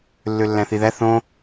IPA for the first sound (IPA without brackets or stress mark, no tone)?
lː